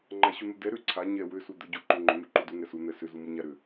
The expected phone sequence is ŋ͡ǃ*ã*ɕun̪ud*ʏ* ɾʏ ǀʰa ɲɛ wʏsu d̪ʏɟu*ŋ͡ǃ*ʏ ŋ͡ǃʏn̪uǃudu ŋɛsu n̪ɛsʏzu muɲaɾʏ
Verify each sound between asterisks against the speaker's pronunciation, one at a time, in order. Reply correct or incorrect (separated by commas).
incorrect, incorrect, incorrect